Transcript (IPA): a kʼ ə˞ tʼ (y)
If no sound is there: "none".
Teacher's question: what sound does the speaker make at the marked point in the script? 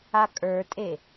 e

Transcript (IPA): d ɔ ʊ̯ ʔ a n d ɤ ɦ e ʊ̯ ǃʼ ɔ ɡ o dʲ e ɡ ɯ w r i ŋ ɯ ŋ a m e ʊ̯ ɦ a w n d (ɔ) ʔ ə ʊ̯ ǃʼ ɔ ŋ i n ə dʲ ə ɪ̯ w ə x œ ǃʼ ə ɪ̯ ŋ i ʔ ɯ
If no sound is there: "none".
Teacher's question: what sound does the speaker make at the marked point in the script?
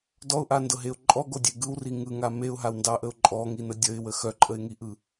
ɑ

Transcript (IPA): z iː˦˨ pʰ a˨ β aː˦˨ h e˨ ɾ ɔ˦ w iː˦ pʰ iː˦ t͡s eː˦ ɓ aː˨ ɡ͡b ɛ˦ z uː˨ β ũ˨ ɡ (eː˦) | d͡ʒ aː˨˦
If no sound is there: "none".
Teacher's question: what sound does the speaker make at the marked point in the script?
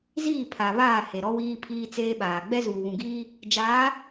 iː˦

